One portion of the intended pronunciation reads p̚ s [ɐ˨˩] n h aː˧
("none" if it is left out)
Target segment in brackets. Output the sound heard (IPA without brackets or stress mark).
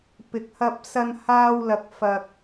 ɐ˧